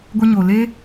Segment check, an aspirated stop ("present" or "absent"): absent